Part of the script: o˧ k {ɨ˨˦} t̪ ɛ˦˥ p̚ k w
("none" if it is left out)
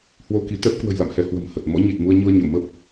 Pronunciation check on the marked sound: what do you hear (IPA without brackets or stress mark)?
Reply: i˨˦